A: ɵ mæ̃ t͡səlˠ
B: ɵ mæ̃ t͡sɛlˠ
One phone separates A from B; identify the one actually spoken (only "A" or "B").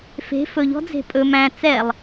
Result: B